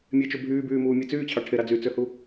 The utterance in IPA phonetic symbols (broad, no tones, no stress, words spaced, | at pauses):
mʲet͡ʃo bʱyːbyːmuːmʲe t͡syːt͡ɕʰɑ ʈʰeɾɑ d͡zyt͡søhu